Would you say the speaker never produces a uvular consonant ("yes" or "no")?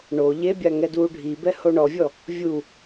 yes